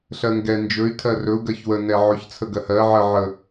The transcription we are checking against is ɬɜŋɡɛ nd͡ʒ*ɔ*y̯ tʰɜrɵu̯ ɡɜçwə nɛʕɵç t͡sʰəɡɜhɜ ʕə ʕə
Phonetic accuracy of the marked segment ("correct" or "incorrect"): incorrect